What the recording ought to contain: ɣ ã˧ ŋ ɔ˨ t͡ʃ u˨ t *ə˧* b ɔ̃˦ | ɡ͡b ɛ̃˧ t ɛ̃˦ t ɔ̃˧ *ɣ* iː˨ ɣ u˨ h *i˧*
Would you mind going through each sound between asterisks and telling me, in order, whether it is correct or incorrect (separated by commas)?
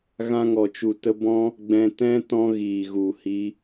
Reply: correct, correct, correct